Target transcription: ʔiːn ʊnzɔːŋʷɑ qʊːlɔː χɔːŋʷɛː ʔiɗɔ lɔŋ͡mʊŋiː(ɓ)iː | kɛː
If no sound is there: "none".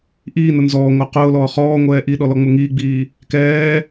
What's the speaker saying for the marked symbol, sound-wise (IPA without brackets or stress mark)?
ɡ͡b